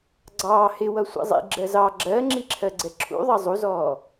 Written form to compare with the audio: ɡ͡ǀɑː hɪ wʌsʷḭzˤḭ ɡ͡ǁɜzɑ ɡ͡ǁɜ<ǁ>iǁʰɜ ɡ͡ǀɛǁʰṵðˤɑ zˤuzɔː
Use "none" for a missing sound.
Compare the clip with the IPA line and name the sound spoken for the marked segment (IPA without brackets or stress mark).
ŋ͡ǁ